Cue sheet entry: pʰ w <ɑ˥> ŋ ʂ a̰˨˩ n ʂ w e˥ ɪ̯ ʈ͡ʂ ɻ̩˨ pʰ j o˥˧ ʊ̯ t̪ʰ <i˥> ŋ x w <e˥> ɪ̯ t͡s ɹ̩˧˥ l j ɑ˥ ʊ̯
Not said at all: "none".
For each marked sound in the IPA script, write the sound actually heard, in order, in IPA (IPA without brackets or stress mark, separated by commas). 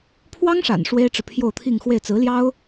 ɑ˥, i˥˧, e˥˩